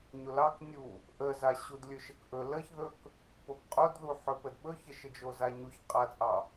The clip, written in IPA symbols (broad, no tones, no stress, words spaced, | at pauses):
ɲolɑk nʲu | ʔəza ɕudlʲɵʃəkʔɵ ləçðɵk | pokqʼodðu ħɵpədɓɵçə ʃəd͡ʒozaɲuç qʼat͡sʼɑ